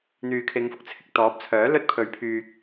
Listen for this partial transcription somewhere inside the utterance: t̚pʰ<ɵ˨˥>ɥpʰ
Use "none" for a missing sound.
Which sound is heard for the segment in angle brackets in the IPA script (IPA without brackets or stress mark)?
ɵ˨˥